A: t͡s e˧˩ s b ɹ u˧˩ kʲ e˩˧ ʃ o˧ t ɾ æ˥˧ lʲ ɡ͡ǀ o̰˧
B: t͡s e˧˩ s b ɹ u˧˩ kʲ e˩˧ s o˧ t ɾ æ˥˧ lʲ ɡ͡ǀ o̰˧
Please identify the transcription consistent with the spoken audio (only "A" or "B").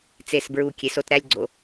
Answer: B